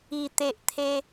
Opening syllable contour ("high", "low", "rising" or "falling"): low